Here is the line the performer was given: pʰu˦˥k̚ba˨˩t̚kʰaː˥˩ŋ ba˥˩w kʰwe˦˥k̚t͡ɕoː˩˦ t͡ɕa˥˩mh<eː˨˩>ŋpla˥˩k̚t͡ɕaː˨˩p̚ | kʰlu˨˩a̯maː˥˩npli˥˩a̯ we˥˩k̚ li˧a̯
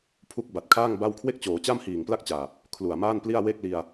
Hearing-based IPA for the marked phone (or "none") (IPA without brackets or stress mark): iː˨˩